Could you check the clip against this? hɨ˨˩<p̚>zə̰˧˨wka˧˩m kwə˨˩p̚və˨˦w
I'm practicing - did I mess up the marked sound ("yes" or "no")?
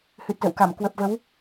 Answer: yes